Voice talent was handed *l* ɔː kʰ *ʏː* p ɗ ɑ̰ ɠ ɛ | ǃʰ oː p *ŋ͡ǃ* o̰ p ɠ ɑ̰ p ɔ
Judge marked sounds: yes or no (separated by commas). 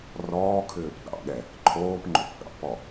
no, yes, yes